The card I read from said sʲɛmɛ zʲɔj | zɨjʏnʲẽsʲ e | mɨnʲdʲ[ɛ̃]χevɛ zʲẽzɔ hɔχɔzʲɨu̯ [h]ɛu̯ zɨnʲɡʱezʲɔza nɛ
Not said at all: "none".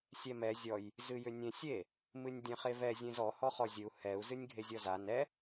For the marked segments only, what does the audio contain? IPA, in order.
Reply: ɛ̃, h

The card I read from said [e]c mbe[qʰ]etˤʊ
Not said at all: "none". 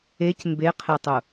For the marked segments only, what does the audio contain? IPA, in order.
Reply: e, qʰ

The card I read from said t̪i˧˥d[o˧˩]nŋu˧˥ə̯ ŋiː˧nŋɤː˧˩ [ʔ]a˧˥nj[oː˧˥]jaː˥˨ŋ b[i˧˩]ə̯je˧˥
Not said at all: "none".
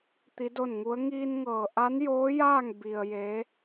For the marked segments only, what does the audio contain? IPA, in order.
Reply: o˥˨, ʔ, oː˧˥, i˧

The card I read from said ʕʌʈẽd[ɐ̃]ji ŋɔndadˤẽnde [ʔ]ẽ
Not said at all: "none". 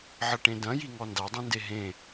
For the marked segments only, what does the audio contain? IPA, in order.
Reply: ɐ̃, ɦ

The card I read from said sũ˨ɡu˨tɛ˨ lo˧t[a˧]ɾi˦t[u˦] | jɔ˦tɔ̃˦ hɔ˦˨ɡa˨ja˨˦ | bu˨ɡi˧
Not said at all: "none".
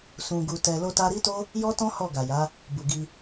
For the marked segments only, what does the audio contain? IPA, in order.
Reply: a˧, o˦

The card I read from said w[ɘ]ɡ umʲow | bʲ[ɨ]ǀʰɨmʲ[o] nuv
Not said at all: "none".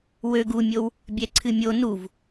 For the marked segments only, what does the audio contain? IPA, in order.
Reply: ø, ɛ, o

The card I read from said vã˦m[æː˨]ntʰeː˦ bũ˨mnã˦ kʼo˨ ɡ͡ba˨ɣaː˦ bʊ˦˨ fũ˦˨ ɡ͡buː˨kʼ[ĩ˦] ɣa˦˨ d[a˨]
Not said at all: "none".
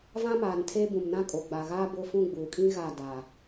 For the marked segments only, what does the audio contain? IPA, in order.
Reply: aː˨, ĩ˦, a˨

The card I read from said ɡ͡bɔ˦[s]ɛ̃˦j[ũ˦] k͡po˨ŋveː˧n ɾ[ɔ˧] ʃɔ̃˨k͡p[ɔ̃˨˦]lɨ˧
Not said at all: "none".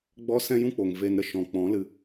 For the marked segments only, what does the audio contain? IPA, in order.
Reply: s, ũ˦, ə˧, ɔ̃˨˦

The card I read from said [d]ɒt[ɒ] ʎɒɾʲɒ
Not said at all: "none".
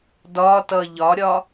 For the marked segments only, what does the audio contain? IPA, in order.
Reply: d, ʌ

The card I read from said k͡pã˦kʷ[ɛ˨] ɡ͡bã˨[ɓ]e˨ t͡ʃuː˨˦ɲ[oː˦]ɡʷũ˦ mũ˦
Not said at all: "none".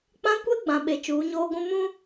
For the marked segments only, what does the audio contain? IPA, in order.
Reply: ɛ˦, ɓ, oː˦

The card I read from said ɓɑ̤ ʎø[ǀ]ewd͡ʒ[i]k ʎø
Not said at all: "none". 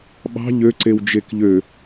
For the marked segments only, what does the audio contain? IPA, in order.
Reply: ǀ, e

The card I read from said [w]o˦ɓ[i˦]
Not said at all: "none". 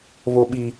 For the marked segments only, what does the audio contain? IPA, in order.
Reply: β, i˦

